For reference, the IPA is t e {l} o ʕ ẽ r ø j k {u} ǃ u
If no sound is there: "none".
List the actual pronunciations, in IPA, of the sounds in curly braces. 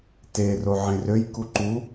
r, u

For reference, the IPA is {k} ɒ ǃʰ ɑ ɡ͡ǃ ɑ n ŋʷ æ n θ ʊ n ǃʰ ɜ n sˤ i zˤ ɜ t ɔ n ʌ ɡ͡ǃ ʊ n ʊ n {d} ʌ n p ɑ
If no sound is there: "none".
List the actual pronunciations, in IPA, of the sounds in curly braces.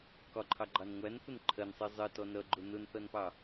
k, θ

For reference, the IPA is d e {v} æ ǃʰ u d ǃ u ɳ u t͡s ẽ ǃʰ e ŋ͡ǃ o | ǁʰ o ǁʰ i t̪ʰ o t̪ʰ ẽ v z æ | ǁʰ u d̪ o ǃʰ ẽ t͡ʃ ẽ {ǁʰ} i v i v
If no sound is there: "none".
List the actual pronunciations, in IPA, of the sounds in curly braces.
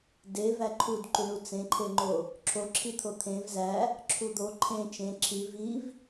v, ǁʰ

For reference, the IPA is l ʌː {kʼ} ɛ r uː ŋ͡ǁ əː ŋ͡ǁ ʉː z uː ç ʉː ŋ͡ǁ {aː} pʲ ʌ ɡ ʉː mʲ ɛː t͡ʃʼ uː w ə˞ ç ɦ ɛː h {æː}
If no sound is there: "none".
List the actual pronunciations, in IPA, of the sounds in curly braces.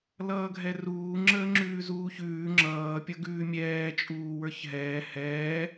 ɡʱ, ʌː, ɛː

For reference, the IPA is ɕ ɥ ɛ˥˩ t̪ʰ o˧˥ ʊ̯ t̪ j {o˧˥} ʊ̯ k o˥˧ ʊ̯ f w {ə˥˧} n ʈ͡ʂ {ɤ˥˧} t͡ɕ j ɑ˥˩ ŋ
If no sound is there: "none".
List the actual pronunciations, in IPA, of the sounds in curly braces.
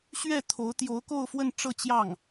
o˧˥, ə˥˧, ɤ˥˧

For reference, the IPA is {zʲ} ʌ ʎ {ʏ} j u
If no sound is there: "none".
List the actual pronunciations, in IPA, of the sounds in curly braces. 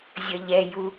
zʲ, ɛ

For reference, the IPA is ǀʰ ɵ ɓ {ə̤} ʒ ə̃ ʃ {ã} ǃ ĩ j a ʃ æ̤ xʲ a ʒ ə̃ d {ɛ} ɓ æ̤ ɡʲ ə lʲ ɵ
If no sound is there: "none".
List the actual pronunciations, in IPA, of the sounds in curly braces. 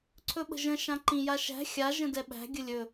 ə̤, ã, ɛ

